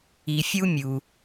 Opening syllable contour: low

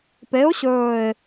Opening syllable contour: rising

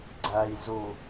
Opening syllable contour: low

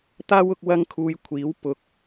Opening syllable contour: high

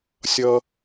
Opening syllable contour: high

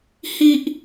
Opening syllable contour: high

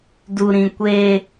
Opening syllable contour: high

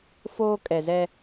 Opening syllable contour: high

